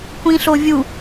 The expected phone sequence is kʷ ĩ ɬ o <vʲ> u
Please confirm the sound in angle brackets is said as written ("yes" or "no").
yes